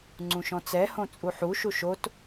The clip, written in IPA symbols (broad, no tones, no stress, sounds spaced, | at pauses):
ŋ͡ǀ ũ ʃ ɔ̃ t͡s ɛ h õ t͡sʼ u ħ u ʃ u ʃ o t